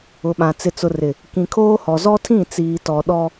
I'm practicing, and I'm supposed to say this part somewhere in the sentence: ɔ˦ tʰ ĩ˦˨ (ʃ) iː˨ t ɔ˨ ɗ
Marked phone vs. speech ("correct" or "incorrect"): incorrect